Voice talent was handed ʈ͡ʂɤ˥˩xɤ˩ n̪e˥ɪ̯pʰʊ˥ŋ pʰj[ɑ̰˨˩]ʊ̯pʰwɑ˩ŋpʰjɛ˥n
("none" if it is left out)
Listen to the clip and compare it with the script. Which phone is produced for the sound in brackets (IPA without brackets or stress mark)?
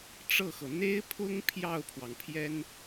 ɑ˥˩